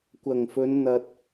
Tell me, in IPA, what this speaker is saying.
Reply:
kʷ ɐ˨˩ ŋ f ɵ˨˧ n n̪ ɐ˨ t̚

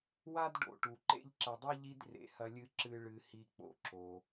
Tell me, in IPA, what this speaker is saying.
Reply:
w a˥ d ɖ o̰˨ ʈ u˩ ǃ ḛ˦ ʎ ǁ ɐ˨ dˤ i˥ ʎ i˦ d r ḛ˩ h ɐ˨ lʲ ɨ˨ ǁ ɨ˨ ɭ ɨ˨ h i˨ k͡p o̰˩ ǁ o˩

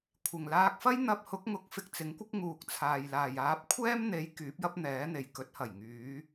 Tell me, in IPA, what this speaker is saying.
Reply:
kʷʰ ɪ˨˩ ŋ l aː˧ k̚ f ɐ˥ j n̪ ɐ˧ p̚ h ʊ˨˥ k̚ ŋ ʊ˨˥ k̚ f ɪ˧ k̚ t͡s ɪ˨˥ ŋ kʷ ɪ˥ k̚ ŋ uː˨ k̚ t͡sʰ aː˨ j l aː˨ j aː˨˥ p̚ kʷʰ ɛː˥ m n̪ e˨˥ j k yː˨˥ p̚ j ɐ˥ p̚ n̪ ɛː˨˥ n̪ e˨ j k ɵ˨˥ t̚ h ɐ˨˩ j ŋ yː˨˧

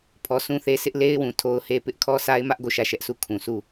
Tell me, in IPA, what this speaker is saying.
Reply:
pʰ ɔ˦ sʰ ũ˦ θ e˦ sʰ ɪ˦ ʔ l e˦ ɪ̯ w ũ˨ tʰ o˦ ʊ̯ h e˦ p ɪ˦ ʔ kʰ ɔ˦ sʰ a˦ ɪ̯ m ä˦ ʔ ɡ o˦˨ ʃ ä˦˨ ʃ ɛ˦ ʔ sʰ u˦˨ kʰ ũ˨ s u˦˨

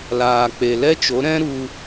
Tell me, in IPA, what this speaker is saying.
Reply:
l aː˨ k͡p e˨ l ɛ˦ t͡ʃ o˨˦ ɾ ɛ̃˦ ɾ u˧

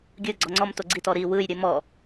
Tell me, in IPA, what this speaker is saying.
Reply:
ɡʲ ɯ ɡ͡ǀ ɔ ŋ͡ǀ ɔ m t o ɡ͡ǀ i t ɔ ɾ i w ɯ j ɾʲ ɨ m ɔ

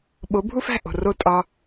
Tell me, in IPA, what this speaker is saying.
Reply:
ɓ o˩˥ bʱ u˥ f æ̤˥˩ ʔ o̤˩ r o˥˩ tʼ ɒ˧

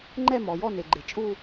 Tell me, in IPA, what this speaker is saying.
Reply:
ŋ͡ǃ ɛ˥˧ m ɔ˩ j ɔ˥˧ n e˩ ɡ͡ǃ e˩ t͡ʃʼ u˥˧

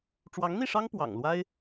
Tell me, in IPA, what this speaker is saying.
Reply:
ʈ͡ʂ w ɑ˧˥ ŋ n̪ i˥˩ ʂ ɑ˥ ŋ p w ɑ̰˨˩ ŋ l w a˥ ɪ̯

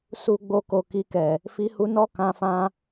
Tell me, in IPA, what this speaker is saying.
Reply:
s u˨ ɡ͡b o˨ k o˨ k i˧ k ɛ˨ | f i˧ h u˧ n ɔ˦ k ã˧ f ã˦

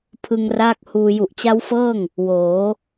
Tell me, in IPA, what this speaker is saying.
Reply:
pʰ ɯ˧ ŋ r aː˦˥ k̚ h uː˧ j u˨˩ ʔ t͡ɕ a˦˥ w f ɤː˥˩ ŋ | w oː˩˦

